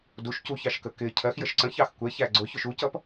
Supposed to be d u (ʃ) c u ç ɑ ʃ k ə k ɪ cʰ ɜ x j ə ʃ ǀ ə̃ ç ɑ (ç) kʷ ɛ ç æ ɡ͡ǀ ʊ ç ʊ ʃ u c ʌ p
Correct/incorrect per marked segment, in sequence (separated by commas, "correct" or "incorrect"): correct, incorrect